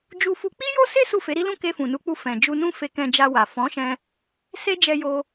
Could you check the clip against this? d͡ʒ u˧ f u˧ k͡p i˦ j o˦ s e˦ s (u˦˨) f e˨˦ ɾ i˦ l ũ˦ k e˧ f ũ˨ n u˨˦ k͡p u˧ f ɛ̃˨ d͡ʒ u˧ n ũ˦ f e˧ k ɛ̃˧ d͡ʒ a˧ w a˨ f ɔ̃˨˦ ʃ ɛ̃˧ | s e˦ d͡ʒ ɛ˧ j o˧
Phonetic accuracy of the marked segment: correct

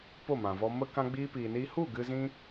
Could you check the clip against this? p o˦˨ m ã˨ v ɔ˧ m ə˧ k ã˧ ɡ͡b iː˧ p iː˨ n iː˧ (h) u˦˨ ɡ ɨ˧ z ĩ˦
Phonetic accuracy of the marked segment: correct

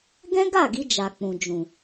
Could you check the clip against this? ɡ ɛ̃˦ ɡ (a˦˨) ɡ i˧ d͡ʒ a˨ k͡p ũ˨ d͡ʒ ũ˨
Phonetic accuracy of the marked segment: correct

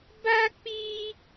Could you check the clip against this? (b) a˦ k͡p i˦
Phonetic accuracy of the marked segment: correct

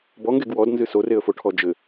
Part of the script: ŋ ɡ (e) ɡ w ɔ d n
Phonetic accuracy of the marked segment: correct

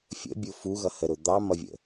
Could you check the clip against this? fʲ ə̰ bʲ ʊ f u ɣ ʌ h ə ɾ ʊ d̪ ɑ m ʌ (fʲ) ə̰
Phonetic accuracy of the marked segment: incorrect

